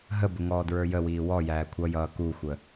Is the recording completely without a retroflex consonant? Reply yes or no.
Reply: yes